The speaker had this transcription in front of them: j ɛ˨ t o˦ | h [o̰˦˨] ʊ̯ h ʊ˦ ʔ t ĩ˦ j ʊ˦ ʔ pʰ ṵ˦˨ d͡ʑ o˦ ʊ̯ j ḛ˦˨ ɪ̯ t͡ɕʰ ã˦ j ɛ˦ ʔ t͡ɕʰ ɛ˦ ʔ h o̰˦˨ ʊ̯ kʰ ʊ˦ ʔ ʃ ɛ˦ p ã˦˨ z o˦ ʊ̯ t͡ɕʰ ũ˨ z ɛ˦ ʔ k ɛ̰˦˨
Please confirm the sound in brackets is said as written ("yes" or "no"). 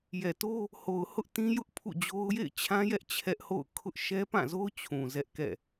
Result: no